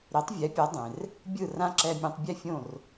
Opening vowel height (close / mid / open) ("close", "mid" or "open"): close